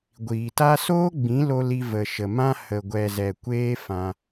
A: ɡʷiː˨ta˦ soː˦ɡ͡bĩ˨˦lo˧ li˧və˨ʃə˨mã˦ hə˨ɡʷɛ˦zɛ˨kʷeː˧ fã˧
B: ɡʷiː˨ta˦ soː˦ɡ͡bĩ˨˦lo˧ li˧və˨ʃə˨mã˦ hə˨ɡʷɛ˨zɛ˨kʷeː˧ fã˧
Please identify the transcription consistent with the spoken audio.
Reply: B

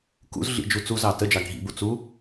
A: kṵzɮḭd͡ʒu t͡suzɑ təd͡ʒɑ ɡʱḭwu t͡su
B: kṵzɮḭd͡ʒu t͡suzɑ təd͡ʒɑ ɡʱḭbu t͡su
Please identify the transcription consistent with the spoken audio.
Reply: B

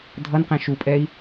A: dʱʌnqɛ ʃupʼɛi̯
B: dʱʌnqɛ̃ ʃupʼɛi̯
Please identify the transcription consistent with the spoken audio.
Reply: B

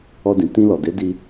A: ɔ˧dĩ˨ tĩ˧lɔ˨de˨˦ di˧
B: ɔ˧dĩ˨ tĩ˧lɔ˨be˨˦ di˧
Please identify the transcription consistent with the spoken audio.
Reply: A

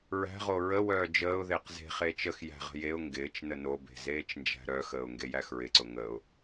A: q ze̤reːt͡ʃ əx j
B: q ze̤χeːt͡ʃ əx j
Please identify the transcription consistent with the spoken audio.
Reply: B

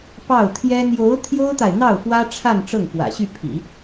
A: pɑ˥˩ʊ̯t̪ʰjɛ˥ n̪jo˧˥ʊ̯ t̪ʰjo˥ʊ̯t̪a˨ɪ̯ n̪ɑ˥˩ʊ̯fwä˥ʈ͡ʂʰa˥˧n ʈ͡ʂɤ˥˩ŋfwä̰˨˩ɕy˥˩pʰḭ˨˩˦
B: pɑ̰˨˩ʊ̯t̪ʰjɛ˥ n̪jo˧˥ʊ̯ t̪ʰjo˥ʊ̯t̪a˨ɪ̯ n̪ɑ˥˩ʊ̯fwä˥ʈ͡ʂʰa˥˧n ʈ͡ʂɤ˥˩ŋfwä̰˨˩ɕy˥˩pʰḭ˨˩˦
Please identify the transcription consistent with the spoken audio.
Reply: A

